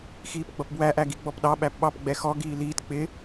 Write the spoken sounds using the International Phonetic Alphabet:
x iː p ɡ͡b ʌ p b w æ ʔ æ ɡ i ɡ͡b ɔ p ɗ ɑ ɓ æ p ɓ ɑ p ɡ͡b ɛ x ɔ ɡ iː l iː t k͡p ɪ

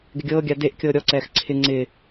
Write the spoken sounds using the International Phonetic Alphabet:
ɡ ɪ ɡʲ ɤː ɡʲ a d e ʔ kʲ ɤː ɾʲ ɔ ǀ ɛː x ǀʰ ɪ ŋ͡ǀ ɪ

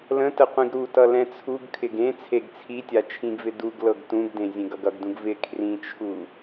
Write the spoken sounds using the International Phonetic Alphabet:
l ə̃ t ə qʷ ĩ ɡ ɾ u t ʌ l ɛ̃ t͡sʰ u ɡ kʰ ɪ ɡ ẽ t͡sʰ e ɡ t͡sʰ i tʲ a t͡ʃʰ ĩ ɡ v ɪ d u ɡ l ɤ ɡ t ũ ɡ d ẽ zʲ ẽ ɡ ʌ ɡ ʌ ɡ d ũ ɡ v ɪ kʰ r ĩ t͡ʃʰ u

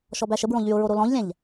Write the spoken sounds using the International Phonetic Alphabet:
ʃ ɔ b æ ʃ ə b ɹ õ ʎ y ʊ̯ ɹ o ɾ o l ɔ̃ ʎ lʲ æ̃ ʎ

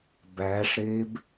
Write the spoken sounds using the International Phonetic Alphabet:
b æː ʂ ɾ eː b

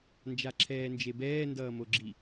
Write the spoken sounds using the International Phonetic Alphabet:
n d͡ʒ a ǁʰ ɛː n d͡ʒ e b ɛː n d ʌː m o ɡ͡ǁ i

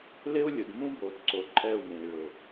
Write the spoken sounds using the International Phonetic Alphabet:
l ɪ˦ u̯ lʲ ʊ˨ d m ũ˦ b o˨ d ǀ o˨ ǃʼ ɛ˦˨ u̯ m ẽ˨ i̯ ɭ ʊ˨

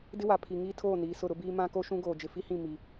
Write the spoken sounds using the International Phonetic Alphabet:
d ɪ˦ w a˨ pʰ i˨ ŋ iː˦ tʰ oː˦˨ n iː˨ s ʊ˦˨ ɾ ʊ˦ b iː˦ m ã˦ k o˦ ʃ ũ˦ ɡ oː˨ d͡ʒ ɪ˨ f i˦ h ĩ˦˨ m i˨

